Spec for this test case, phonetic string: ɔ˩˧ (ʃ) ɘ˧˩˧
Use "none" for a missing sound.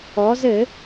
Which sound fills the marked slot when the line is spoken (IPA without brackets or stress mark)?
z